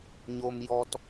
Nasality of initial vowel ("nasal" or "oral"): oral